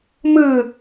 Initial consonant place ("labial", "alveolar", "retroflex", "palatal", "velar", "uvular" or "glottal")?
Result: labial